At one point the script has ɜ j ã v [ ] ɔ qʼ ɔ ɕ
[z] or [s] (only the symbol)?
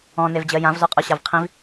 z